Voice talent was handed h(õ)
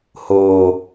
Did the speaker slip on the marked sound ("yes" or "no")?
yes